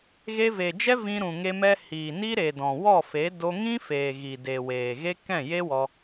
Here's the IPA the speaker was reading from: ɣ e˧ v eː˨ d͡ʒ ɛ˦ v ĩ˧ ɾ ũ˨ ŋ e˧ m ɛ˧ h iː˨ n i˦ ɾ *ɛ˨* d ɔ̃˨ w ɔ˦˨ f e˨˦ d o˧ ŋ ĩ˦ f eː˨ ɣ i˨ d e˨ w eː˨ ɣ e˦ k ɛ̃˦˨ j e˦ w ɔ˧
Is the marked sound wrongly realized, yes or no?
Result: yes